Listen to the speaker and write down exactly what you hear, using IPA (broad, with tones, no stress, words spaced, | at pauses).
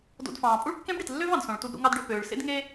do̰˧dfɑ̃ː˩ pʼu˥ɭkːẽ˥bɽi˩tlːø˥v ɑ̃˩dsõ˩ɭtu˧dɾṵ˧ ŋɑ˧dɖø˩ pøː˩ɭ sḛ˥dŋe˥